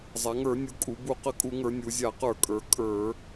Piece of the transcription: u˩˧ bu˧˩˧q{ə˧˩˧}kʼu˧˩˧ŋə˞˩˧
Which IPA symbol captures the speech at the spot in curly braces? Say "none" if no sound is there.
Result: ə˧˩˧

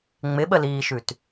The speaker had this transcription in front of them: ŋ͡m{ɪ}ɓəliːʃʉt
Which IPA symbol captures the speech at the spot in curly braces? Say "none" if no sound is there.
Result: ɪ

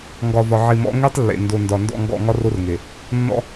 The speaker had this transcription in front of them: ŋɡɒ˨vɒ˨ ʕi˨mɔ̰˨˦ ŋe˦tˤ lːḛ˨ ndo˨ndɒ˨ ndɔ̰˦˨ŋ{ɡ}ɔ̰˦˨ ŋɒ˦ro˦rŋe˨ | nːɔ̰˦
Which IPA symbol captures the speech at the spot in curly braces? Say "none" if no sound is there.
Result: ɡ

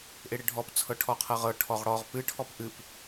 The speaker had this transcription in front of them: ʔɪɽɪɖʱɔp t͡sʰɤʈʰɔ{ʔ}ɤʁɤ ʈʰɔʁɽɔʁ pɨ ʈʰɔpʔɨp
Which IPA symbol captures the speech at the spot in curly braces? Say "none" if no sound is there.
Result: qʰ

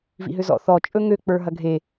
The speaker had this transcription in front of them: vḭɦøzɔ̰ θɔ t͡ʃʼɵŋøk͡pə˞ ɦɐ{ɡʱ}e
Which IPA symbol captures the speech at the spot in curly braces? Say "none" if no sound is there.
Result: ɡʱ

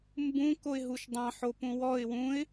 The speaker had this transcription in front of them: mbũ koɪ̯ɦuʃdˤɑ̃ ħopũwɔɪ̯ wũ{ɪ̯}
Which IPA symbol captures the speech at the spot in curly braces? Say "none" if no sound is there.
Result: ɪ̯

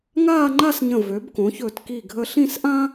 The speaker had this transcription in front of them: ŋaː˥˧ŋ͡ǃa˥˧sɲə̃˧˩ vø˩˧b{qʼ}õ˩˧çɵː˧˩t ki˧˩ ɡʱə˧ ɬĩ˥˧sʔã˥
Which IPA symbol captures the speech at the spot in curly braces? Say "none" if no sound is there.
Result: k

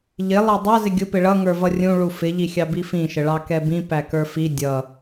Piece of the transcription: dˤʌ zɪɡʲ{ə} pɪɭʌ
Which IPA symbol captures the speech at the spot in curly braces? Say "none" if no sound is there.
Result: ʊ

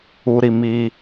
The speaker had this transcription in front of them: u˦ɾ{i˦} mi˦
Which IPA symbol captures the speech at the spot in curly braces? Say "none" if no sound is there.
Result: i˦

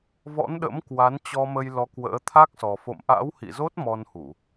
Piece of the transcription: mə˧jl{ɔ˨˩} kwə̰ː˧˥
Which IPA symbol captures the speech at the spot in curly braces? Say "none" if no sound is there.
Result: ɔ˨˦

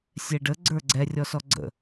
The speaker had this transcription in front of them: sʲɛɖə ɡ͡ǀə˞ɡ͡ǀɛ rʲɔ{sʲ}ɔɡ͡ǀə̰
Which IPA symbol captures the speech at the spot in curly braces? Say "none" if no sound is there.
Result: s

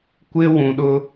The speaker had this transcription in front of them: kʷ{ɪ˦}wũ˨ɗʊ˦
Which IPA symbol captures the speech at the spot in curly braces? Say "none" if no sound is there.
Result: ɪ˦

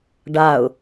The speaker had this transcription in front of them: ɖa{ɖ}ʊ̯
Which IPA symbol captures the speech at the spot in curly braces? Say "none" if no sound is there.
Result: none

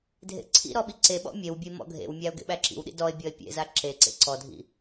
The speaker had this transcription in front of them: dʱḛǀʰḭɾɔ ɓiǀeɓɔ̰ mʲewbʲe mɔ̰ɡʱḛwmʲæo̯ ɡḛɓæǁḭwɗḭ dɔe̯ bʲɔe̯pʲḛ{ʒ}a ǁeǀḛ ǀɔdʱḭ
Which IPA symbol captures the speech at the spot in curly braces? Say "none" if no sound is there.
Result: z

